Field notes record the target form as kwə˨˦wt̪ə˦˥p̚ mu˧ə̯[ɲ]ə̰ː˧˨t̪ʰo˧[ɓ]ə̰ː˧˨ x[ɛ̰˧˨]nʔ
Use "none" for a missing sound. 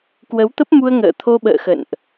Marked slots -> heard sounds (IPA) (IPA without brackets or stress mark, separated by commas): ŋ, ɓ, ə̰˧˨